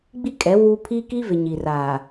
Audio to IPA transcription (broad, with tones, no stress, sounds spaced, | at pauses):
ɡ͡b i˦ kʼ ɛ˨˦ w u˦ pʰ iː˦ k i˦ v ɪ˨ ɲ i˨ r aː˨